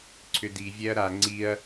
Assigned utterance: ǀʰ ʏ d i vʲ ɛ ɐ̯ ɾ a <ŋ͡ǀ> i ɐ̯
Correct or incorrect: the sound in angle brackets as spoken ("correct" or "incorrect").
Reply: correct